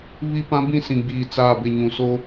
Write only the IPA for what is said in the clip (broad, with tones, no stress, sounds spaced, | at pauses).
β i˦ p ã˦ b ĩ˦˨ s ĩ˨ ɡ͡b iː˨ t͡s aː˨ b ɪ˨ ɲ ũ˨ s o˦